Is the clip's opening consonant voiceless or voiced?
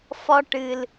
voiceless